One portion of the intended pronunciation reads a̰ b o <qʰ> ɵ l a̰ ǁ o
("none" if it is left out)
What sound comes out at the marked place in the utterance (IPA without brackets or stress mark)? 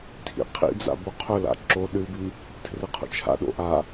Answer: qʰ